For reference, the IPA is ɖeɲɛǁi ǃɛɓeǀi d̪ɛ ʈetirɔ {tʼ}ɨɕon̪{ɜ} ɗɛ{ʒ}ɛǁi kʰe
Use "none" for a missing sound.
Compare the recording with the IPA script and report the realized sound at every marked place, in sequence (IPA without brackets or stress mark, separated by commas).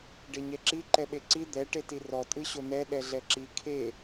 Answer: tʼ, ɛ, ɮ